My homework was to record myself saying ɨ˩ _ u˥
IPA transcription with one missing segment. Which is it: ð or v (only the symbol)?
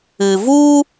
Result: v